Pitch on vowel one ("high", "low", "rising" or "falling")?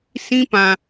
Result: high